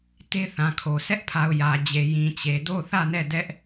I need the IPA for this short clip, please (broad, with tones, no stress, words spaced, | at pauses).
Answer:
te˦θã˨kʰo˨ sɛ˦ʔpʰa˨ʊ̯ jä˨d͡ʑe˨ jĩ˨t͡ɕe˨ do˦˨θä˦˨nɛ˦˨ dɛ˦ʔ